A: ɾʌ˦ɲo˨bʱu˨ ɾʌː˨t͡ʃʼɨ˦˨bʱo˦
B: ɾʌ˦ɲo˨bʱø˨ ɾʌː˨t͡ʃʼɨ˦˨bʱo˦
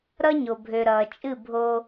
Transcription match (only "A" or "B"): B